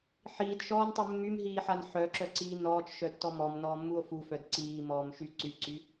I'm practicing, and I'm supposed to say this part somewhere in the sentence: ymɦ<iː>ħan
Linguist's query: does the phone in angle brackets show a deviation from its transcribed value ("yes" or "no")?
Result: no